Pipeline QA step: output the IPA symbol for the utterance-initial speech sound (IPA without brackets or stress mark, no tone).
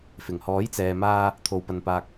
f